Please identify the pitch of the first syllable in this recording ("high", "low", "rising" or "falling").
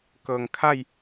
low